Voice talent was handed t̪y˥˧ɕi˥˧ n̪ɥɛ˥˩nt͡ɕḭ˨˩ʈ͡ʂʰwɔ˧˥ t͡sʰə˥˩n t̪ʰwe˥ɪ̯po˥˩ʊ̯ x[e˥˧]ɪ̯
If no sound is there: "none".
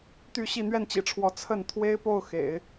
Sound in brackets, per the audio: ḛ˨˩˦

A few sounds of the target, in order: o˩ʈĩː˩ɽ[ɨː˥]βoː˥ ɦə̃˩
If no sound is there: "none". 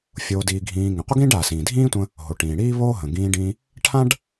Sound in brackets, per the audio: iː˥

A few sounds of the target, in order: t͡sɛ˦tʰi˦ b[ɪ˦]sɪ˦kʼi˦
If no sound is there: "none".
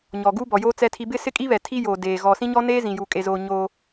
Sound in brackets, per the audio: ɪ˦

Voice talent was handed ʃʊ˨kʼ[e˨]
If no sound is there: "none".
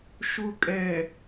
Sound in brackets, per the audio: ɛ˨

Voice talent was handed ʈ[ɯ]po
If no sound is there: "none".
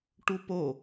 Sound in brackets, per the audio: u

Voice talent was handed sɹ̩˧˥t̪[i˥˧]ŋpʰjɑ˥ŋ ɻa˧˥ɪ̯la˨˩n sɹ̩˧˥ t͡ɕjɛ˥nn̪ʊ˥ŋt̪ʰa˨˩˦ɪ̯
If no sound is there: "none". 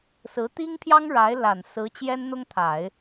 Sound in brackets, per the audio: i˥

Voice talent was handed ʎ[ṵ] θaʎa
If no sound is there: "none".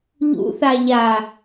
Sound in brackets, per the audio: ṵ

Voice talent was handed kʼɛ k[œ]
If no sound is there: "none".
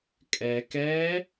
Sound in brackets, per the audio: ɛ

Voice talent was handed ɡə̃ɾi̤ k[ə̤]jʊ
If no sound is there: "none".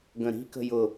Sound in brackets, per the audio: ə̤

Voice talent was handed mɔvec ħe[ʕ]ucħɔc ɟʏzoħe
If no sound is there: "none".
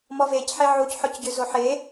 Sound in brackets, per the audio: ʕ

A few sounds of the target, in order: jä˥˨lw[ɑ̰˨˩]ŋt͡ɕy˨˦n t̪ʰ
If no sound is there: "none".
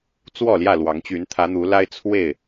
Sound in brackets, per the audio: ɑ˨˦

